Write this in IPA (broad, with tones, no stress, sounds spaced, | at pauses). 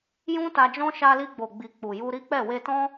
j ũ˦ t a˧ d͡ʒ ɔ̃˦ ʃ a˧ l i˧ ɡ͡b o˨ ɡ͡b i˨ k͡p u˨ j u˧ ɾ i˦ k͡p ɛ˦˨ w e˧ t ɔ̃˦